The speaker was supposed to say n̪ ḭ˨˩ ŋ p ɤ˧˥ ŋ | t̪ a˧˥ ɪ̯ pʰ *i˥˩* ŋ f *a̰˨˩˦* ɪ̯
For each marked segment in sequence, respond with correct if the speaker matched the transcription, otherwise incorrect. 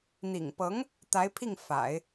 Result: correct, correct

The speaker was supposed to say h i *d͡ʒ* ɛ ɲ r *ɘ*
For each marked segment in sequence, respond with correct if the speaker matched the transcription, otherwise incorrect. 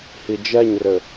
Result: correct, correct

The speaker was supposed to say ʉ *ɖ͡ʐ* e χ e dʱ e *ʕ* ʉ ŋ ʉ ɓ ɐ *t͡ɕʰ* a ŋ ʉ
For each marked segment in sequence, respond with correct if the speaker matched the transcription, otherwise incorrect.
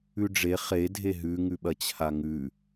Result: correct, incorrect: ɦ, correct

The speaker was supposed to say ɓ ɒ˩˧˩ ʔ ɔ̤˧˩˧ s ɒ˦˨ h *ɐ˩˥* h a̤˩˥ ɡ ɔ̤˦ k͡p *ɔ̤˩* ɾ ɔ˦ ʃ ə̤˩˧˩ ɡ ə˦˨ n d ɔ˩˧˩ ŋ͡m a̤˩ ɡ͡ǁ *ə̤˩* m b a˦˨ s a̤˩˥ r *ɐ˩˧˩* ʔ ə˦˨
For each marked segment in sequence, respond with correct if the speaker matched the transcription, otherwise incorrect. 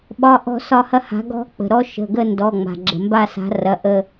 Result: incorrect: ɐ˦, incorrect: ə̤˩, correct, correct

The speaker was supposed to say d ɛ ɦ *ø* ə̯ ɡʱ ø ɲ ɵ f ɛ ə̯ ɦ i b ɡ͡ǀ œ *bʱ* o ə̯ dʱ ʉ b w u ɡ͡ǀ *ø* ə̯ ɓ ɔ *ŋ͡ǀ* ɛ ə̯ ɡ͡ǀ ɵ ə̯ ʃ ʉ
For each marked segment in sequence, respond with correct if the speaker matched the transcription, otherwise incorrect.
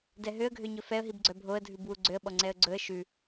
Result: correct, correct, correct, correct

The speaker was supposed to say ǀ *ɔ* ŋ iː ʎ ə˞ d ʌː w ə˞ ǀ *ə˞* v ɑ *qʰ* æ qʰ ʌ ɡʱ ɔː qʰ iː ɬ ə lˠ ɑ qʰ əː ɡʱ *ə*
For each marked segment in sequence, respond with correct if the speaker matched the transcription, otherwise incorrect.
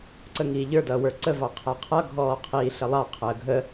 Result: incorrect: ə, incorrect: ə, correct, correct

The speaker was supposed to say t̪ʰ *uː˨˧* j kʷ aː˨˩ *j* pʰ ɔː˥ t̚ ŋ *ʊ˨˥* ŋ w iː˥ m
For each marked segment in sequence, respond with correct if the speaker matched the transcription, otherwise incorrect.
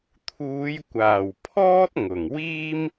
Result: correct, incorrect: w, incorrect: ʊ˨˩

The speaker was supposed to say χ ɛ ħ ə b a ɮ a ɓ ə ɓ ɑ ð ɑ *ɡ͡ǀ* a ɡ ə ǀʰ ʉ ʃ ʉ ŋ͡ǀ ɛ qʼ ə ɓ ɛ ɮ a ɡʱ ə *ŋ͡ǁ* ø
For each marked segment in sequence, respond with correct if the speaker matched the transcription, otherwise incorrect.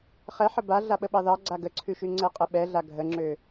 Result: correct, correct

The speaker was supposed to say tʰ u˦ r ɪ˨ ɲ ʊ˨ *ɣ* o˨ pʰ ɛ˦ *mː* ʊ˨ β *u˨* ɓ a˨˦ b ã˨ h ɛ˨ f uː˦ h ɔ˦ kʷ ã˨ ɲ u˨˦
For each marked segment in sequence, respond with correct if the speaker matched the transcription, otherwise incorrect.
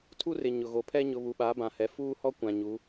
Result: correct, incorrect: ɲ, correct

